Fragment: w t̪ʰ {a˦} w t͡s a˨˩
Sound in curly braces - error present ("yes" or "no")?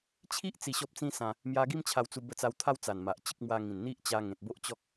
no